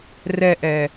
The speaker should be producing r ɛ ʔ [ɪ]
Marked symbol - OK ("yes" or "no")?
no